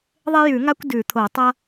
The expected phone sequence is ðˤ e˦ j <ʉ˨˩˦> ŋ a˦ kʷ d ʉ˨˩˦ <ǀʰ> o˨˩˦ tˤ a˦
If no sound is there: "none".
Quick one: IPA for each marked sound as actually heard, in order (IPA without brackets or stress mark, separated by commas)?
ʉ˨˩˦, t̪ʰ